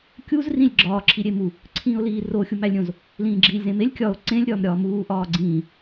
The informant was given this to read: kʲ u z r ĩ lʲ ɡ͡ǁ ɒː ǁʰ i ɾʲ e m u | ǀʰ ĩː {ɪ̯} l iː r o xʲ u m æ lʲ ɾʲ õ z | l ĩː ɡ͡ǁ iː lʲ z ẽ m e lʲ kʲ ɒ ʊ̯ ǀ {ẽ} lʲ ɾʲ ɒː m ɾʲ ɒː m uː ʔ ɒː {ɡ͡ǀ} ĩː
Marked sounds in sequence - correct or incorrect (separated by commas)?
incorrect, correct, correct